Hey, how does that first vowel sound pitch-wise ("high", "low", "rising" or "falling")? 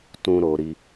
high